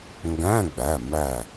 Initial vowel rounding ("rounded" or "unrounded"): unrounded